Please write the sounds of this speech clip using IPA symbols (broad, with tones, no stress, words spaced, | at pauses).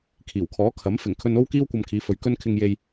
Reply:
kʰiː˨˩wkʰɔː˨˥kʰɐ˨˥m fɪ˨˩ŋ kʰɵ˧no˥w kiː˥wkʷɐ˧mkʰiː˨˧fɵ˨ɥ kɵ˧nkʰɪ˨ŋje˨j